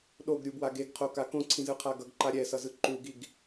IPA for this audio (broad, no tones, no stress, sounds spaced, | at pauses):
ɗ o ɡ ɾʲ u b w a ɡ e ɡ qʰ o k a k õ ǀʰ ĩ z ɯ qʰ a ɡ ʌ ɡ ǃ a ɾʲ ɛ s ʌ z ɯ ǃ u ɡ i ɡ